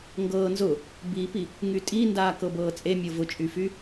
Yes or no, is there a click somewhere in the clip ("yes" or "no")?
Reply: no